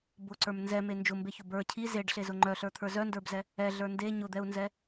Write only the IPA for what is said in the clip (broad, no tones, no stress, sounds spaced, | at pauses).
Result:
b ʊ ǀ ə˞ m n z ɛ m e n d͡ʒ ʊ m b e ç ʊ b ə˞ cʰ i z e ɖ ɬ e z ʊ ŋ͡ǃ œ ɬ ə˞ t̪ʰ ə˞ z œ n d ə˞ b z ɛ | ɛ ɮ ə˞ n d e ɲ ʊ d̪ ɛ u̯ n z ɛ